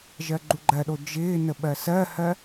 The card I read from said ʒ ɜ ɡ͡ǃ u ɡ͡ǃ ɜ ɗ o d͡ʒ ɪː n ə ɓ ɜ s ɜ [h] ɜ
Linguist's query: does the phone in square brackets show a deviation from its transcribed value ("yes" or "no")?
no